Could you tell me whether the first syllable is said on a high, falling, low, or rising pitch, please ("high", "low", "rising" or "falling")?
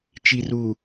low